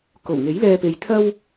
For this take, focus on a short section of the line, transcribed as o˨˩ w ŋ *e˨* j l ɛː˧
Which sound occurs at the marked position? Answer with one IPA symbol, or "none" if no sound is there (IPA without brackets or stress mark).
e˨˥